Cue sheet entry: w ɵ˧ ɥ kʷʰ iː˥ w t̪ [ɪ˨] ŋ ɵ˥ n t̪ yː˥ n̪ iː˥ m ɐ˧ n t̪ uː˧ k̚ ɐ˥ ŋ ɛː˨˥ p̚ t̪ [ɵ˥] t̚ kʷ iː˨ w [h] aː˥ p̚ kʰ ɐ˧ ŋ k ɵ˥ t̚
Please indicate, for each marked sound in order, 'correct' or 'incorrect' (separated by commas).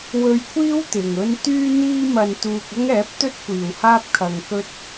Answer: correct, correct, correct